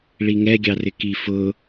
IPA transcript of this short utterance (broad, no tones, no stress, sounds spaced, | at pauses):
ɭ i ŋ ɛ ɡʲ ɑ r ɪ k i f ʊ